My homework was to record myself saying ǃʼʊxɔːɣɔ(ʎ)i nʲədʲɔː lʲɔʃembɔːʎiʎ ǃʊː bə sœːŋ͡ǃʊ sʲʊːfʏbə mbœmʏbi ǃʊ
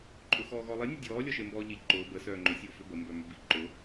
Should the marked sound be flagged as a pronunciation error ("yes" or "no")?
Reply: yes